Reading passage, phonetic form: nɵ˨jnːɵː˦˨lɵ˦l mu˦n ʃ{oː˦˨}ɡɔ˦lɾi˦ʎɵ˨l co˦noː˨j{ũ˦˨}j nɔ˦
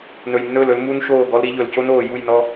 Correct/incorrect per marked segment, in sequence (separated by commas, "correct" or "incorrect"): correct, incorrect